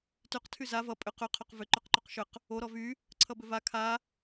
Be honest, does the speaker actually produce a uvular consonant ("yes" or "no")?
yes